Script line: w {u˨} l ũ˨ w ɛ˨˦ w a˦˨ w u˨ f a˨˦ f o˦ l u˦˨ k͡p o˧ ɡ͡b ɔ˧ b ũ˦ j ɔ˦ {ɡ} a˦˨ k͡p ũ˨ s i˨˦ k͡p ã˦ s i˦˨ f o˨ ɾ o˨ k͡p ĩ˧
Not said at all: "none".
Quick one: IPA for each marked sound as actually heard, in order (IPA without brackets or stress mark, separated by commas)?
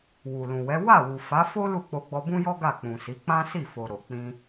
u˨, ɡ